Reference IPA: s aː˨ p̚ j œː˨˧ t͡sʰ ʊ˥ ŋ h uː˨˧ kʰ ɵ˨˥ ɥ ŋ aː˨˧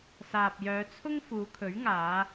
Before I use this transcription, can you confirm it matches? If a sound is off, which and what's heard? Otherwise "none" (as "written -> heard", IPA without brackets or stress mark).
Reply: h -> f